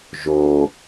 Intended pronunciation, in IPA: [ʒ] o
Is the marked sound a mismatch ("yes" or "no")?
no